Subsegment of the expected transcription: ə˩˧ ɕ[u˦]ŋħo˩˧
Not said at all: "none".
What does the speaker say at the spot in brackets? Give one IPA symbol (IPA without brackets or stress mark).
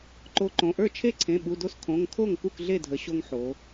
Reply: o˦